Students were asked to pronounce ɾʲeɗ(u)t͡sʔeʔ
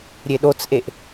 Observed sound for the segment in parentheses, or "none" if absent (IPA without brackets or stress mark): o